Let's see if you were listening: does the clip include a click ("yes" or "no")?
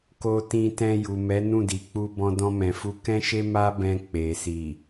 no